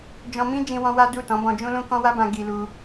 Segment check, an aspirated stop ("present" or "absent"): absent